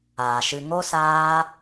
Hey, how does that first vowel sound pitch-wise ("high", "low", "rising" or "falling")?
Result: low